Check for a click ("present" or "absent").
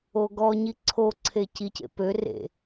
present